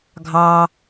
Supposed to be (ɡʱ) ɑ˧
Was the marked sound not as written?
no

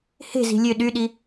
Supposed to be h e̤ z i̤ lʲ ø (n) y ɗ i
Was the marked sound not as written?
yes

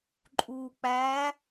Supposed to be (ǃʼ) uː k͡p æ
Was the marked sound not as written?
no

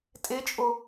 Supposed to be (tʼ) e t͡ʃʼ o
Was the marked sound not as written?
no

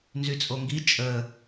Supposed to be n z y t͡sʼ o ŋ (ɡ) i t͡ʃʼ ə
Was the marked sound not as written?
no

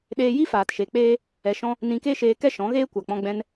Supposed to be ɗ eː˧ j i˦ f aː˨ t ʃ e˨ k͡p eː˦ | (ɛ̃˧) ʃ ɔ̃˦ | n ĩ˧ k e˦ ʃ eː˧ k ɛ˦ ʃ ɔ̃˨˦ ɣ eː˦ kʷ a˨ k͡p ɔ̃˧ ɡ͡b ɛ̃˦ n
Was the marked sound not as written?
yes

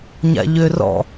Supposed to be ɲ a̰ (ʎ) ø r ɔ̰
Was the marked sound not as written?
no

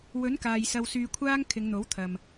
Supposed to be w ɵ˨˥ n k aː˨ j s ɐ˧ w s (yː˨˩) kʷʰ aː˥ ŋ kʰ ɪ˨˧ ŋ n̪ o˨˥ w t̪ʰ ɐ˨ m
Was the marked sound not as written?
yes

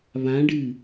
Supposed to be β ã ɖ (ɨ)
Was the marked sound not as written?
no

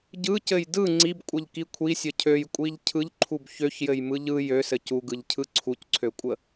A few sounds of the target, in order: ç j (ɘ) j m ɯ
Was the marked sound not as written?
no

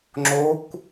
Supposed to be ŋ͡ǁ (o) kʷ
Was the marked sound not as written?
no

